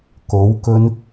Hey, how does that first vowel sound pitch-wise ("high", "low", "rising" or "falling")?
rising